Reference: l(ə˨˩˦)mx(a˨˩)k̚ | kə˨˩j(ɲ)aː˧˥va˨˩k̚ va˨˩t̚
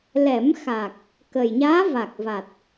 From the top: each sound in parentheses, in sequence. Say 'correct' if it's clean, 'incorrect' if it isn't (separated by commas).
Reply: incorrect, correct, correct